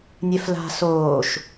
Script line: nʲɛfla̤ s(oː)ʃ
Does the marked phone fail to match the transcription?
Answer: no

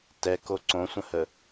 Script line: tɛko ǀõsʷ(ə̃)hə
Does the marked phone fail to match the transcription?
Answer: no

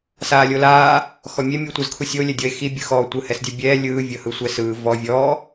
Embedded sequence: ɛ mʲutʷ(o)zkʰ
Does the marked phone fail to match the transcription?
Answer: yes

